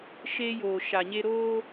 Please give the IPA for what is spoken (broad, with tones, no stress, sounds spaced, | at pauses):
ʃ e˦ j oː˨ ʃ a˨ ɲ e˦ ɾ oː˦